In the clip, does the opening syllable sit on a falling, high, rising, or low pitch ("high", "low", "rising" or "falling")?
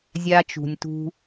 high